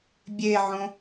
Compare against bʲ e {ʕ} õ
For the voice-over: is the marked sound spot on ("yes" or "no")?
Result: yes